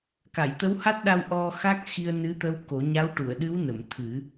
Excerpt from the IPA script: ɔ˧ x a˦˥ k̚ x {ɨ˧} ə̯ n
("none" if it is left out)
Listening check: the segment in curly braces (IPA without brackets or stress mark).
i˧